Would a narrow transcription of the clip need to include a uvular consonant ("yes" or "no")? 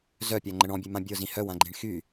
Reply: no